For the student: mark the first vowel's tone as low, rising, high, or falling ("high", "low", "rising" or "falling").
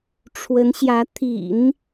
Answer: rising